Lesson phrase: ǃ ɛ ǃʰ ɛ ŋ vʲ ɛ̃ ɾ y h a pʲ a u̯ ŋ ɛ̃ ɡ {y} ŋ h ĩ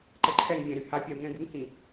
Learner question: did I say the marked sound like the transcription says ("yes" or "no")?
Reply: no